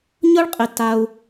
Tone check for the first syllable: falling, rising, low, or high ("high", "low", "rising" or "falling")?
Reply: high